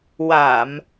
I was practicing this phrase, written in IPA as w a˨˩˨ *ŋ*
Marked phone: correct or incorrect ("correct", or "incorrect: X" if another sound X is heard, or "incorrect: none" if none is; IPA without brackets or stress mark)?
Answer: incorrect: m